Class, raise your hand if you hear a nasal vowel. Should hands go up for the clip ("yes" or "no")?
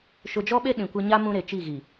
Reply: yes